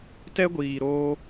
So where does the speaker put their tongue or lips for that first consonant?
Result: tongue tip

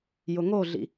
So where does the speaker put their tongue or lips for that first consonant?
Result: palate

